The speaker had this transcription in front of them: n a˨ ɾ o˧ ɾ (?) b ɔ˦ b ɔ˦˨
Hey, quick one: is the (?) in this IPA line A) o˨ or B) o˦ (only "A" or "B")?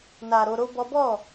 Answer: B